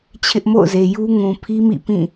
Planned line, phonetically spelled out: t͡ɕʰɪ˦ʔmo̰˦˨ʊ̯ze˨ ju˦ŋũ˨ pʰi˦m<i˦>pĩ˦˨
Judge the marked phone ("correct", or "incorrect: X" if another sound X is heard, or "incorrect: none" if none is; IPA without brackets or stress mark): incorrect: ḭ˦˨